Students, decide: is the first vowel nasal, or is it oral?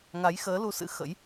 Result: oral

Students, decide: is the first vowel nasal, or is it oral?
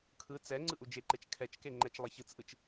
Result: oral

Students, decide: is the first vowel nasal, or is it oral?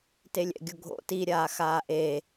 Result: oral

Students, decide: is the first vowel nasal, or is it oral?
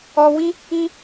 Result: oral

